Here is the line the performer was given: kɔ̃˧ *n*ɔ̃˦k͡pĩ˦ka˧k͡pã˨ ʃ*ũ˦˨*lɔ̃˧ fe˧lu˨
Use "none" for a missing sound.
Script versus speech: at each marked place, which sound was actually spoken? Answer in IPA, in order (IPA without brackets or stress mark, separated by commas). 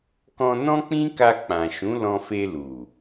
n, ũ˨˦